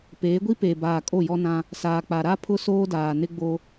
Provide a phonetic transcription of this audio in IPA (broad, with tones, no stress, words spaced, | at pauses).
peː˨˦ɡʷi˦peː˨ baː˨kʼo˦˨ jɔ˦nã˦ | saː˨k͡pa˨ɾa˦ pʰʊ˦soː˦daː˨nɪ˦ ɡ͡bo˦